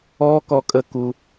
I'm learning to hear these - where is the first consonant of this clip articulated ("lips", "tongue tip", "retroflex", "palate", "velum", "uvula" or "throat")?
velum